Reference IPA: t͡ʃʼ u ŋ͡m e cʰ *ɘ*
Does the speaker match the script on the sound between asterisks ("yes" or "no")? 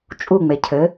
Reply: yes